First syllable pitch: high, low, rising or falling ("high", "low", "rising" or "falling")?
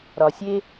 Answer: low